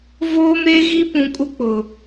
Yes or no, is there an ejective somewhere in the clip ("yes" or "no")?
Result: yes